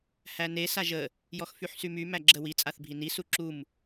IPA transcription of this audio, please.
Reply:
h æ n e s a ʒ ə | j ɔ x f y ħ s y m y m æ ɡ͡ǁ ə w i t͡sʼ a θ bʱ i n i s u ǁ u m

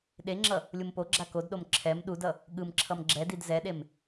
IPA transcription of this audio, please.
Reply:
ɗ e ŋ͡ǁ ʌ | lʲ u m p o ɡ͡ǁ a k o d ɗ o m ǁʰ ɛ m ɗ u d ʌ | ɠ ɯ m ǁʰ ʌ m ɡ͡ǁ ɛ d i d z ɛ ɗ e m

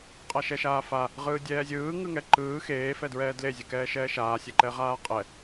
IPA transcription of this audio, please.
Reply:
qʼ a ʃ ɛ ʃ aː f a | ʁ ɯː dʲ ɛː zʲ ɯː ŋ ɯ ŋ ɛ ǃ ɯː x eː f ɛ d ɹ ɛː d l e zʲ ɯ k ɛː ʃ ɛː ʃ aː sʲ ɛ ǃ ɛ ʁ aː qʼ ɛ

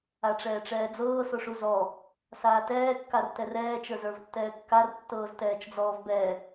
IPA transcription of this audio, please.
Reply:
a ʈ͡ʂ ɛː ʈ͡ʂ ɛː d͡z ɤː s o ʂ u z ɔ | s aː t ɛː kː a r t ɛ r ɛː t͡ʃ ə˞ z ə˞ v tː ɛː kː a r tː ɤː z t ɛː t͡ʃ d͡z ɔː v b ɛ

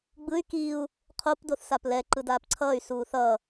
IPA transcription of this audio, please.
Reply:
ɡ͡b ɯ y̯ k i u̯ | qʰ o p d o θ s a p l ɛ ǃ ɯ d aː p ǀʰ ʌː y̯ s uː θ ʌ

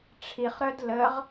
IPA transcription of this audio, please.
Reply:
ʈ͡ʂʰ i χ ɾ œ d l ə ʁ

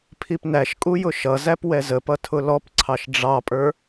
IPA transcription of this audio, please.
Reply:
pʰ i p n æ ʃ kʼ u j ʊ ʃ ʌ z æ p w ɛ z ə p ʌ tʰ ʊ l ɔ p ǀʰ ɑ ʃ ɖ͡ʐ ɑ pʼ ə˞

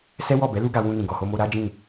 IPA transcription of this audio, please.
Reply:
s ɛ˦ w ɔ˦˨ b ɛ˨˦ l u˦ ɡ a˧ w ũ˧ n ĩ˨ ɡ ɔ˨ h o˧ m o˧ ɾ a˦ d͡ʒ ĩ˦˨

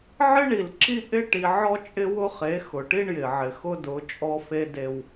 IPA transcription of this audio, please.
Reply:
ʕ ɪ˦ ɳ i˨ l ǁ i˦ ʔ ɪ˦ ʈ i˨ ʕ ɔ˦ t͡ʃʼ ɪ˦ w ʊ˦ χ e˨˦ x ʊ˨ ʈ i˦ ɳ j ɪ˨ ʕ ɪ˨ x ʊ˦ d ʊ˨˦ t͡ʃʼ ɔ˦ f e˦ d e˦ w

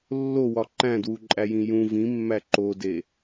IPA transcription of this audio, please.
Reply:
lː o w ɒ ǃ æ̃ d w u ǃʼ æ j ĩ j ũ v ĩ mː æ ǃ o d e

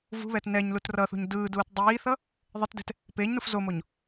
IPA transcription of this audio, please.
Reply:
v ṳ β ɛː t n ɛ ɲ l u t r ʌ θ ṳ ɲ d ɯː d uː t dˤ iː θ ʌ | ðˤ e t d ɛ̤ t | p eː ɲ n u f z o m o ɲ

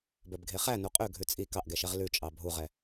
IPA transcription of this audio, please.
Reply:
b œ b ɡʱ e χ æ n u qʼ ø ɡʱ ʉ t͡sʼ i k ɑ ʔ ɡ ɛ ʃ ɛ ʁ l ʉ t͡ʃʼ ɑ bʱ u ʁ ɛ

